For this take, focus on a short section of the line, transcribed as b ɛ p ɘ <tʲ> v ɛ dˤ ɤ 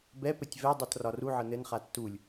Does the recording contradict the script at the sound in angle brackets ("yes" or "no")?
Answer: no